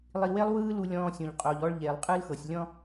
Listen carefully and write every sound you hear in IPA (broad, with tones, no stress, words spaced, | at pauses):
lˠi˧we˥lˠwɯː˥lu˧ lʲɔ̃ː˧sʲõ˩ʎqʼo˩ʎɔ˧ɭ ʎe˩lˠqʼɯ˧lxɤ˩sʲ lʲɔ̃˧